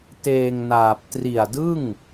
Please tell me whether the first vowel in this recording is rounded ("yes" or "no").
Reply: no